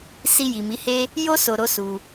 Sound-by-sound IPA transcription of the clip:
si˧ ji˨mi˨˦he˦ | jo˦ so˧ɾo˦ su˧

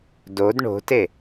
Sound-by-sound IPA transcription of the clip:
dod ɳo̤te

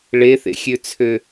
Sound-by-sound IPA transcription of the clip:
ɭeθḛxʲøt͡sʰø

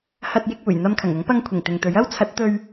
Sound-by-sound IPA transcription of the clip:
hɐ˧t̚jɪ˧k̚ uː˨˩jn̪ɐ˧mkʰɐ˨˩ŋʊ˨˥ŋ pɐ˧ŋkʷʰɪ˨˩ŋ t̪ɪ˨ŋt̪ɵ˨˥ɥ ɐ˥wt͡sʰɐ˨˥t̚ t̪ɵ˨ɥ

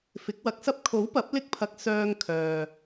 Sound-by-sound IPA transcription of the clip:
fɪ˨˥k̚wɐ˧k̚sɐ˥p̚ kʰo˨˥wpɐ˨˥p̚ lɪ˥k̚pʰɐ˧k̚ sœː˧ŋ kʰœː˨

